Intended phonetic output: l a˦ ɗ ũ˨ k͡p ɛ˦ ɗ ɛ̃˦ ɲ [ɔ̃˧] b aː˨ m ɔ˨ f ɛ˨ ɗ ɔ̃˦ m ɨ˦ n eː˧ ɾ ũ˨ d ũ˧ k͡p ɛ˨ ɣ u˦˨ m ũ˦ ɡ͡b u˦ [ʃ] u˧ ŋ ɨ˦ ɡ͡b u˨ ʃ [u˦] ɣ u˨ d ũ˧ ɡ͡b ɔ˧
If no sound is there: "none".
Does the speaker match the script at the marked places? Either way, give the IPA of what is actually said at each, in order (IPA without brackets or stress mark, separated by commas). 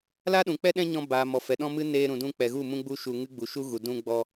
ɔ̃˧, ʃ, u˦